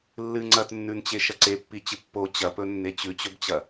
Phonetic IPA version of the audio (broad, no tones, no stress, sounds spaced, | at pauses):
lː ɨ ŋ͡ǀ ɐ t nː ʉ n t͡ɕ e ʃ ɐ ǀ e pː i t͡ɕ ɨ pː o t͡ɕ ɐ p ɵ nː e t͡ɕ ʉ t͡ɕ ɵ b t͡ɕ ɐ